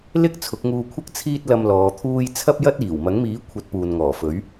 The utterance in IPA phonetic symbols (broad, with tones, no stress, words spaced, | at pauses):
lɪ˥k̚ t͡sʰʊ˨˥k̚ŋuː˧kʷʰɐ˥k̚ t͡sʰiː˥t̚lɐ˧m lɔː˨˧t̪ʰuː˥j t͡sʰɐ˥p̚jɐ˥t̚ iː˨˩wmɐ˨˥ŋmiː˨˥ kʷʰɐ˨˥t̚ puː˨nŋɔː˨˩fɵ˨˥ɥ